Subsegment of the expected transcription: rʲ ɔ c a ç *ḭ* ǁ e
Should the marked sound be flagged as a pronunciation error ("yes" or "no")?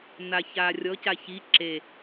yes